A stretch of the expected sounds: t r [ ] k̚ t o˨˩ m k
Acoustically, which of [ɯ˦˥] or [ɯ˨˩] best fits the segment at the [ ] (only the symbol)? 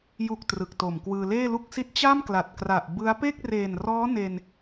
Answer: ɯ˨˩